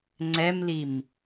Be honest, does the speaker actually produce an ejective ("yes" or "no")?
no